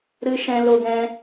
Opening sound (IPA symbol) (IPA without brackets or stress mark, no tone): ɾ